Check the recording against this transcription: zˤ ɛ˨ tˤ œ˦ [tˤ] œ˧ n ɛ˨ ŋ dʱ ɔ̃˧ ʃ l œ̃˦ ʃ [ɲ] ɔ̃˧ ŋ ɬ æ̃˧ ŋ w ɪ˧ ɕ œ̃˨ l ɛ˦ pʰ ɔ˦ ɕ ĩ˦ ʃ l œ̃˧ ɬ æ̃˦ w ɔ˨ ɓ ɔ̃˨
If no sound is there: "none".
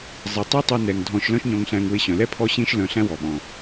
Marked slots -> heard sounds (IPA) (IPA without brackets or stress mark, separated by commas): tˤ, ɲ